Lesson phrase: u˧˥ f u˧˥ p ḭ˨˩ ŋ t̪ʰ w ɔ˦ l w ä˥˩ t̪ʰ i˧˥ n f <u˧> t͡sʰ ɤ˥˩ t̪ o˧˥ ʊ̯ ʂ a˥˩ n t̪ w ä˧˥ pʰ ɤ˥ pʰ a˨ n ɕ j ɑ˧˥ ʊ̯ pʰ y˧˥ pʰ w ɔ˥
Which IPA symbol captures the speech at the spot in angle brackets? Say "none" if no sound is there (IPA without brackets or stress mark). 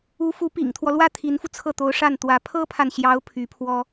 u˧